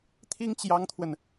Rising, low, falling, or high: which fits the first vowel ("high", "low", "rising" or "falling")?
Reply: high